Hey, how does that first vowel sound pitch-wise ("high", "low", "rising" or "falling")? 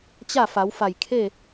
falling